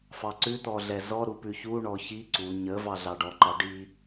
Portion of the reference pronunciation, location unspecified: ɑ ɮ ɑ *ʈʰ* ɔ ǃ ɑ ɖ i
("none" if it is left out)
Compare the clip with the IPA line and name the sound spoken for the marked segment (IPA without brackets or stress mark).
ɖ